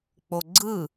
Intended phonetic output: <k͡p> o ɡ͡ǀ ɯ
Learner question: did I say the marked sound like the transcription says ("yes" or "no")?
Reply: yes